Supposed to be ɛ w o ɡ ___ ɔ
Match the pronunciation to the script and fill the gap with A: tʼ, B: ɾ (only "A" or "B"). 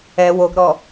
B